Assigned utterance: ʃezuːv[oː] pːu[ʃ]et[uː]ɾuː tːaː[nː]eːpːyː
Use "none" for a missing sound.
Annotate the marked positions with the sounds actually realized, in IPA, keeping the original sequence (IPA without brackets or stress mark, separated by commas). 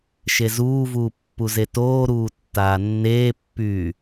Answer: uː, z, oː, nː